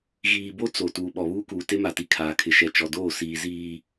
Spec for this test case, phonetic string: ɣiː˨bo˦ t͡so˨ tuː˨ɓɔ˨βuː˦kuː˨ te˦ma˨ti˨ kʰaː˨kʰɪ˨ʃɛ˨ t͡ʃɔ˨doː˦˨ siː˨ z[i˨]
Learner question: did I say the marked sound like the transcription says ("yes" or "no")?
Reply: no